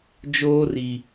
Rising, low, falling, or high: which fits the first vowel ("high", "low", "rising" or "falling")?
high